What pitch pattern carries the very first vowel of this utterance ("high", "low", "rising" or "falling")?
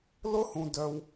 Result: high